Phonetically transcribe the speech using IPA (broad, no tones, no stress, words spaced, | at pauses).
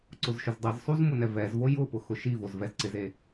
ǀʊzʃʊzdˤizsˤuz mʊnɛvɛzvo jʊpʊ xʊʃivoz vɛzǀɪze